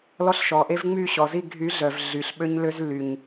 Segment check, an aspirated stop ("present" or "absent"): absent